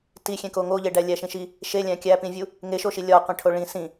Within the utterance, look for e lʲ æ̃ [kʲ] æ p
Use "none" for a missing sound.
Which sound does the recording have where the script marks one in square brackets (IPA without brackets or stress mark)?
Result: kʲ